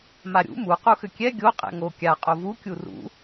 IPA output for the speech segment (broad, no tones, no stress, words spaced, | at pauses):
maɾʲṵ mu quxʏkʲɛ ɡʲo qʼɛ̰ŋo kʲa qʼovu kʲurṵ